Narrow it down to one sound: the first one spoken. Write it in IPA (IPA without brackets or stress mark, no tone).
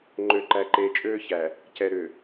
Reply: ŋ͡ǃ